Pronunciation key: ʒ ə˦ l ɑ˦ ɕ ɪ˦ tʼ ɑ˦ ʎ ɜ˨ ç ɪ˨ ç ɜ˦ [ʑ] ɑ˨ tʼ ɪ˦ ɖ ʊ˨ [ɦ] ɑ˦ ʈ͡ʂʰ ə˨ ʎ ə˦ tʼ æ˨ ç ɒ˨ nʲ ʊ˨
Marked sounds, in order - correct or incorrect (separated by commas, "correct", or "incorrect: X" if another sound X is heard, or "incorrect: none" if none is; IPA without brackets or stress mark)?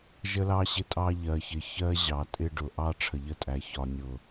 correct, incorrect: ʔ